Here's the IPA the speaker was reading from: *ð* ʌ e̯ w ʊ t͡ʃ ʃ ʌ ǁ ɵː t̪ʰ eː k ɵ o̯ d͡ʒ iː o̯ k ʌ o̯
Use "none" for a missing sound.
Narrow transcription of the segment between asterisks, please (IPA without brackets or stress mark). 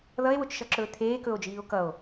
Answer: ð